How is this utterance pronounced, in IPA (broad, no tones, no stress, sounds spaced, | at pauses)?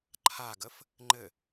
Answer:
ǃʰ a ɡ ə f | ŋ͡ǃ ɘ